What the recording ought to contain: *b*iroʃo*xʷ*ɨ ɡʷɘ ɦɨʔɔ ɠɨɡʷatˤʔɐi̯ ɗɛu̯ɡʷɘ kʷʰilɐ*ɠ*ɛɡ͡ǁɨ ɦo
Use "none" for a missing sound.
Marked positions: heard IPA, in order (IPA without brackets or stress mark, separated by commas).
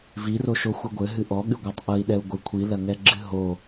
v, xʷ, ŋ